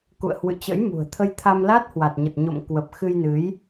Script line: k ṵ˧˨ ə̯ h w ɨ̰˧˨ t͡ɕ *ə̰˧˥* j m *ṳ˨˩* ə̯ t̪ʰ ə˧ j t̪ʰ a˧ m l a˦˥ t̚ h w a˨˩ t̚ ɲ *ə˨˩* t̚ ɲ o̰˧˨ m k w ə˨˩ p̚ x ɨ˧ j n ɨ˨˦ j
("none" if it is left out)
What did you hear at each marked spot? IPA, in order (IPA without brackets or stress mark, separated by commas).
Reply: ə̰˧˥, ṳ˨˩, ə˨˩